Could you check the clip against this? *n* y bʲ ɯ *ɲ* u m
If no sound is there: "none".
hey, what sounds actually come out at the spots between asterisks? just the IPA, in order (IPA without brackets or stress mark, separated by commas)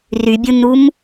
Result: r, n